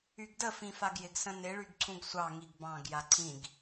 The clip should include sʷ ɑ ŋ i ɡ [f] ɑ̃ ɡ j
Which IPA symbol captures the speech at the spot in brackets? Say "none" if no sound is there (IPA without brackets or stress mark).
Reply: b